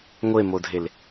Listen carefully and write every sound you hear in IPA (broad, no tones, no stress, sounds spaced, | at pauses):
ŋʷ e m o dʱ e l